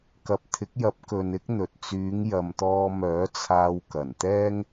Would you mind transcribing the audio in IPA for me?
kɐ˨p̚t̪ʰɪ˨˥k̚jɐ˨˥p̚kɵ˨n ɪ˥k̚n̪ɵ˨t̚ t͡syː˨˧ŋjɐ˨mt̪ɔː˧mœː˨˥ t͡sʰaː˧wkɐ˨˩nt̪ɛː˥ŋ

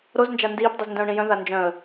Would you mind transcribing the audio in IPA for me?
ɾoznd͡ʒa ndiːpdˤiz ndœ̃ʊ̯ɳĩjœ̃ða nd͡ʒœ̃ə̯

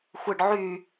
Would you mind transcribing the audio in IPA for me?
xʷɯɖʕy

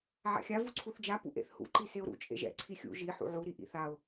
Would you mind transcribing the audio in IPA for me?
ʕa̰xʲa vuǀʰuθd͡ʒa pṵʔḛθhṵ ǃiseʊ̯ɾṵ t͡ʃʼḛʒɛ̰ ǀʰixʲṵ ʒi ħṵʕu ɾiʔḭθaʊ̯

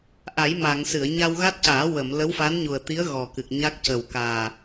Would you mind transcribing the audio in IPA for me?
ʔa˨˩˦jma˨˩˨ŋ sɨ˨˩˨ə̯ɲa˧wɣa˦˥t̚caː˨˩˦ wə˨˩˨m lə˧˥wfa˧˥nɲu˨˩ə̯t̪i˧˥ə̯ ɣɔ˨˩kɨ˨˩k̚ɲa˦˥k̚ cə˨˩wkaː˨˩

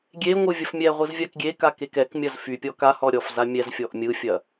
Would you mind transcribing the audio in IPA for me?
ɡʲeŋʷɯ vʲɐfmʲɛʁʷɯz vʲakɡʲeka kekɛkmʲɐz fypʲɔ ka hɔɾʲɔfza mʲɛz fʲɔʔmʲɯfʲɐ

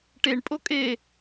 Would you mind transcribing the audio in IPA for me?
ʈeɳ pʼokʼe

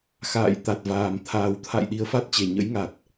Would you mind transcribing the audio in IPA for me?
xa̰ː˧˨j t̪a˨˩t̚vaː˨˩m t̪ʰaː˨˩wt̪ʰa̰˧˨j ɗi˨˦ə̯fa˦˥t̚t͡ɕe˨˩ ɲə̰˧˥jŋa˨˩t̚

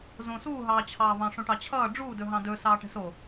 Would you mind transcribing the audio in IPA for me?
zõsuːɦɑːt͡ɕʰɑː vɑ̃ʂõʈɑt͡ɕʰʌː ɖ͡ʐuːdɵɦɑ̃ dɵ sɑːʈɛ̤so

